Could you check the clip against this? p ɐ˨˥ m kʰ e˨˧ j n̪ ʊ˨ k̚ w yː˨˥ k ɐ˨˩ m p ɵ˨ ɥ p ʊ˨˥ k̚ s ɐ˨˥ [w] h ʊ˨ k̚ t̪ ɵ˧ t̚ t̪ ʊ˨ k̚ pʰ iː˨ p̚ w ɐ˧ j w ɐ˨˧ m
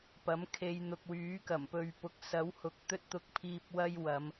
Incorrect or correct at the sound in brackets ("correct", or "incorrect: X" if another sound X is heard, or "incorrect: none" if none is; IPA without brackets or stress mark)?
correct